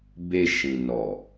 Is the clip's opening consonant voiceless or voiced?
voiced